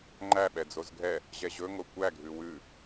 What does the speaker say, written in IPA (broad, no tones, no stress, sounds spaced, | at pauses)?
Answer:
ŋ͡ǃ æ ɓ ɛ d͡z o z ɡʱ ɛ | ʑ ɛ ʑ ɵ ŋ o kʷ æ ɡʱ ʉ w ʉ